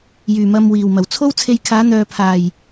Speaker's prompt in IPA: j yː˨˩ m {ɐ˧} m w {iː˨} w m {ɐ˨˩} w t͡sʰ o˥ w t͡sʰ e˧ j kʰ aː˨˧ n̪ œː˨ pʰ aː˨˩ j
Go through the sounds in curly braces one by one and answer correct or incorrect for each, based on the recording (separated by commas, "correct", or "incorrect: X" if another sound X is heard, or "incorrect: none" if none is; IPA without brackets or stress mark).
correct, incorrect: iː˨˩, correct